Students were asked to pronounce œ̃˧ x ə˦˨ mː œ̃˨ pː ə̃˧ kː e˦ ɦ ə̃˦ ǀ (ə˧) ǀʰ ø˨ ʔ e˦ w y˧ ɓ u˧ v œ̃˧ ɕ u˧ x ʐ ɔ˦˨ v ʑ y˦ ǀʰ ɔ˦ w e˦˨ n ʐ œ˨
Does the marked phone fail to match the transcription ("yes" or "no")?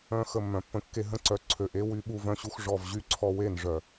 yes